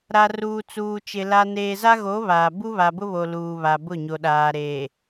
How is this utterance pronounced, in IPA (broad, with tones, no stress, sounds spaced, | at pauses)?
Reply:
ɾ a˨ r uː˨ t͡s uː˨ t͡ʃ ɪ˨ l a˨ n eː˨ z a˦ ɣ o˨˦ β aː˨ b u˦ β a˨ b ʊ˦ β o˨ l uː˨ β a˨ b ʊ˦˨ ɲ o˨ ɗ aː˨ ɾ eː˨